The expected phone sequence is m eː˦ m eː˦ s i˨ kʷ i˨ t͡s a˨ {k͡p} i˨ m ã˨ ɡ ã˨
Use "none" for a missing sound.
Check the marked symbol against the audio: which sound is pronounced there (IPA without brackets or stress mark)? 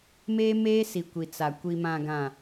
kʷ